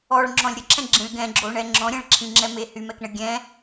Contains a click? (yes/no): yes